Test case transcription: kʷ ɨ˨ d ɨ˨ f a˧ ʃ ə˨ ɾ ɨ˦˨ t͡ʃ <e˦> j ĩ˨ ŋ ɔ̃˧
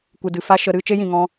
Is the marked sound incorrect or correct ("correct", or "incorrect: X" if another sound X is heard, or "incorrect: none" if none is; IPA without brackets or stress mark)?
correct